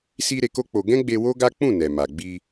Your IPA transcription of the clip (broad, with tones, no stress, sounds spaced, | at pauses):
s i˧ ɾ e˧ k o˦ k͡p o˧ ɡ ɛ̃˦ ɡ͡b e˧ w o˦ ɡ a˦ k͡p ũ˦˨ n ɛ˨ m a˨ ɡ͡b i˧